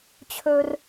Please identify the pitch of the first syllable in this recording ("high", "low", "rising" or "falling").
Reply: high